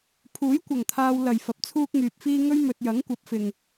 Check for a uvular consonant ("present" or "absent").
absent